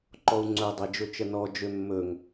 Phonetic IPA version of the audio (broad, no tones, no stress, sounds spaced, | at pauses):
ǃ ɔ u̯ ŋ͡ǀ ɵ dˤ e d͡ʒ ɵ t͡ʃ ə n ɔ d͡ʒ ø mː ɵ ŋ